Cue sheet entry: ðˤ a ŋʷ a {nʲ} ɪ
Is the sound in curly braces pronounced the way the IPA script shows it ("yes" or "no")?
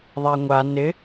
no